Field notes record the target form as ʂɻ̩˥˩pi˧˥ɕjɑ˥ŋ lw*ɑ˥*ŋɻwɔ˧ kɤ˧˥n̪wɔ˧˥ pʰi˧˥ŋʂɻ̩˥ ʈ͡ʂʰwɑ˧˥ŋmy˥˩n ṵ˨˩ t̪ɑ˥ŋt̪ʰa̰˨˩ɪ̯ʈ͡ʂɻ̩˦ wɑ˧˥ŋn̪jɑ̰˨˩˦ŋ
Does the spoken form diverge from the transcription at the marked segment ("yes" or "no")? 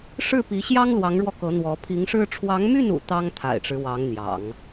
yes